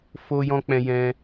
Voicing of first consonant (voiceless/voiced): voiceless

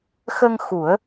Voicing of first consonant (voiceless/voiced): voiceless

